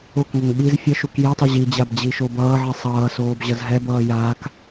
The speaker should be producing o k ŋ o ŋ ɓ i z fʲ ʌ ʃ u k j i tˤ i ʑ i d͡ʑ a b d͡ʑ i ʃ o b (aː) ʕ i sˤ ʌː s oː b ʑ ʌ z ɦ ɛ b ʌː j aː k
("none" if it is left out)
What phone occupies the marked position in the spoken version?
ʌː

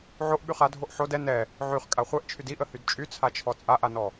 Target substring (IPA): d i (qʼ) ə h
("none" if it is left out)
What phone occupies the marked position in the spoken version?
ʔ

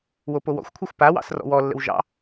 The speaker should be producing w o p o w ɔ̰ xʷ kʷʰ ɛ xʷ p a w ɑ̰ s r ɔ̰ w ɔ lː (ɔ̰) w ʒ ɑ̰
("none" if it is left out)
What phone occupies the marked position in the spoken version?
ə̰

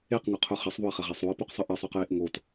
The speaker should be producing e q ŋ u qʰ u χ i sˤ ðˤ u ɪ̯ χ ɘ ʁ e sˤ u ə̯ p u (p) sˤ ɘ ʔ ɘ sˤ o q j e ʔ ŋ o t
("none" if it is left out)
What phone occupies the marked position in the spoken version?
q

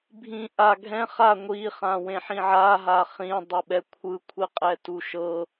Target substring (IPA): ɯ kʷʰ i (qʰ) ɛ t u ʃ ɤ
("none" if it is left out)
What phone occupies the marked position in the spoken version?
qʼ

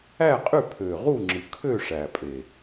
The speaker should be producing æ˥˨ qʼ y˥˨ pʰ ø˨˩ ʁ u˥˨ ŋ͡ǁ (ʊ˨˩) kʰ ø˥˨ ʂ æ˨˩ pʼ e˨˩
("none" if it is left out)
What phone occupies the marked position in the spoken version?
ɯ˨˩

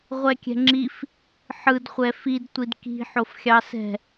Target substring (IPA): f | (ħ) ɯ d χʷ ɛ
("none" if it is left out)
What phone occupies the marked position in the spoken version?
ħ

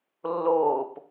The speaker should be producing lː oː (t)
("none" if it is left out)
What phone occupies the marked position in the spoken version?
p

